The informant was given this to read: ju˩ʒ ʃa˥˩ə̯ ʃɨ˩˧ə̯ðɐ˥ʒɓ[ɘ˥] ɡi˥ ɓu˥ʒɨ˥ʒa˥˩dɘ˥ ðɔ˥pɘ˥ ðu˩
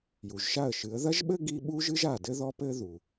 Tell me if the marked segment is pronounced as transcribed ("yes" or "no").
yes